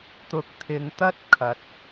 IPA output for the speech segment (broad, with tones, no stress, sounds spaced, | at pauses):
t̪ ʊ˧ k̚ t̪ʰ ɪ˧ ŋ t̪ ɐ˥ t̚ kʰ ɐ˧ t̚